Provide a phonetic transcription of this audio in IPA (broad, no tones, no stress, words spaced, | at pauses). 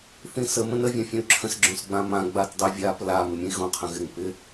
θĩsə mə̃nə vʲãfʲõy̯ǁʰə̃s ɡ͡ǁõsɡ͡bãmã ɡ͡batdˤɪvʲap la mɪmʲə̃i̯ɣõ qʰə̃ɣɪŋ pɪ